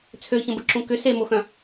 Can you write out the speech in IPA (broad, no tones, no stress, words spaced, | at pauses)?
t͡sʰøçə̃bəǁũ kʏ semoxœ̃